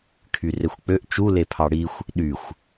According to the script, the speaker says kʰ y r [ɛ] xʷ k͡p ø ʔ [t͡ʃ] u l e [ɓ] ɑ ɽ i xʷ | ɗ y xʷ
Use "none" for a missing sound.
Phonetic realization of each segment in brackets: e, t͡ʃ, pʰ

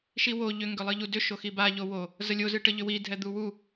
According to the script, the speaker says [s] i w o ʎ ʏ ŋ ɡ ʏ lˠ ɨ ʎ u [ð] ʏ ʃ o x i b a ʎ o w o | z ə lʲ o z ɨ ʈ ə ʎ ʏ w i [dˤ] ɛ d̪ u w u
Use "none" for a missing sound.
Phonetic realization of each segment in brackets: ʃ, d, dʱ

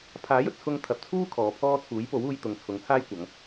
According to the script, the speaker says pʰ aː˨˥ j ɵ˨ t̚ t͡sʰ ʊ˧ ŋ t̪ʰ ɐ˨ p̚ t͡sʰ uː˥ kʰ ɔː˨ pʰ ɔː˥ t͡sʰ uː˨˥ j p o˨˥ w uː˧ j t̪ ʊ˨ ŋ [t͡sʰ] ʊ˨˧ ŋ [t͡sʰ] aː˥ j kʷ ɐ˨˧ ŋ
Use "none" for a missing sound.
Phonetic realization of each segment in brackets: t͡sʰ, t͡sʰ

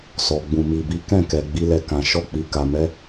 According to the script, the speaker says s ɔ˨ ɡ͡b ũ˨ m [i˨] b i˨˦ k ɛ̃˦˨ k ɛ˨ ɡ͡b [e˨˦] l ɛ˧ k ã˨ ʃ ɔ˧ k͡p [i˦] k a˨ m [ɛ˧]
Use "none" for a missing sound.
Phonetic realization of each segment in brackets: i˨, i˨˦, i˨, ɛ˨˦

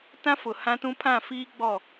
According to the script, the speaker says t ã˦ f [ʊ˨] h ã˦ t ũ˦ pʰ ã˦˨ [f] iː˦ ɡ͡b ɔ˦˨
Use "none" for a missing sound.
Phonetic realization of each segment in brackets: ʊ˨, f

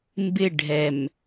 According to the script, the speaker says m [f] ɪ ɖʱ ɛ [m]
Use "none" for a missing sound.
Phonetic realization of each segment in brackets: b, m

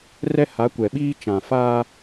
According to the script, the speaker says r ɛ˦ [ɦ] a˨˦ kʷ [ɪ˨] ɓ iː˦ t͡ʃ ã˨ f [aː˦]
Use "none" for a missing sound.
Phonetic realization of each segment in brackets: h, ɛ˨, aː˦

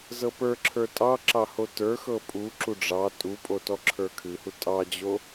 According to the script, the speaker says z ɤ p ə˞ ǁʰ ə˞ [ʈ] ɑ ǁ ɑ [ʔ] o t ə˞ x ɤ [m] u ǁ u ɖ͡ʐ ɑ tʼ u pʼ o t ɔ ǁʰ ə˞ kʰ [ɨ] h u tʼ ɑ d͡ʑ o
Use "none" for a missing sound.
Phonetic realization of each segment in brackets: tʼ, h, pʼ, ɨ

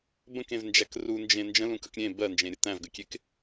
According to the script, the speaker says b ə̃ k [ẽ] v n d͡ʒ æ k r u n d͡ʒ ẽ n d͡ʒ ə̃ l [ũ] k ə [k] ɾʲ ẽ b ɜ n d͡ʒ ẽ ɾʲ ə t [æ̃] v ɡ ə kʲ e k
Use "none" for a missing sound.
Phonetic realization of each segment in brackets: ẽ, ũ, k, æ̃

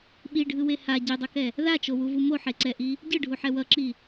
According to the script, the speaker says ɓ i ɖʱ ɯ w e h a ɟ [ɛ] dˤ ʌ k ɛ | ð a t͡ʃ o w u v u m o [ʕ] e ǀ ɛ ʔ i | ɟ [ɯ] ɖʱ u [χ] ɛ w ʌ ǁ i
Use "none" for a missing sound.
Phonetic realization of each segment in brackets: e, ħ, ɯ, ħ

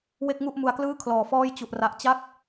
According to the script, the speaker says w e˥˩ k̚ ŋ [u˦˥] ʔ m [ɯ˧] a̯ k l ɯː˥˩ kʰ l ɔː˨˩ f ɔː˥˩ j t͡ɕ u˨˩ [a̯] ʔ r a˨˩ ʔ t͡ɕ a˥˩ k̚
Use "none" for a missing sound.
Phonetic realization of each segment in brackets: u˥˩, u˧, none

